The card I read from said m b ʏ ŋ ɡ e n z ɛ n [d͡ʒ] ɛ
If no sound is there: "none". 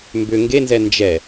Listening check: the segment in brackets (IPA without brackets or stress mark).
d͡ʒ